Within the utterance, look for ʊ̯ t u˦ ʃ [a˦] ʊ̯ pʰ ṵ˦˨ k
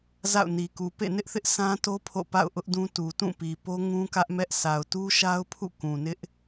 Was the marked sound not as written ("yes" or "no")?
no